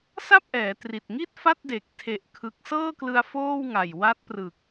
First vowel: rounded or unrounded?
unrounded